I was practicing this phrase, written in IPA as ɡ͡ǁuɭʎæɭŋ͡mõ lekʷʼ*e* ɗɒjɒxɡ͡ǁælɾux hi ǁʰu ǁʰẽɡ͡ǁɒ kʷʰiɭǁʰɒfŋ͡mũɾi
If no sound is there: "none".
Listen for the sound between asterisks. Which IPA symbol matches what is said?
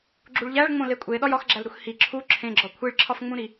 e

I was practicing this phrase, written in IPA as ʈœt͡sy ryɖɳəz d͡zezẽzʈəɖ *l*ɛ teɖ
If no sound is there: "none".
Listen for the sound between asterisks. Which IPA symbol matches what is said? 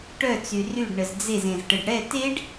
ɽ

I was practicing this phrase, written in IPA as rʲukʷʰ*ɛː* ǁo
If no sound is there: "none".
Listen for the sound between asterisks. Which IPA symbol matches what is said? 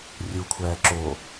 æː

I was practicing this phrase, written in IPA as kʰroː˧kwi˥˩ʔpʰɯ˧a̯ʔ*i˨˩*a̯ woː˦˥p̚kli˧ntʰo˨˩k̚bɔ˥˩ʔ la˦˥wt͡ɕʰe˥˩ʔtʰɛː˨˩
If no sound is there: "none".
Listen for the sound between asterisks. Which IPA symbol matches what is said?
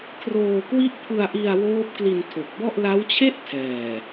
i˧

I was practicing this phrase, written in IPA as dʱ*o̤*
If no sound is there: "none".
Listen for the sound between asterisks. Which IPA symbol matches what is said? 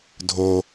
o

